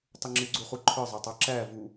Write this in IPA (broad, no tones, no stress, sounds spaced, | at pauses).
tˤ ʊ ŋ͡ǁ ɪ ɡ͡ǀ u χ u ǃʰ ə˞ zˤ ɑ tˤ ɑ ǁ æ v u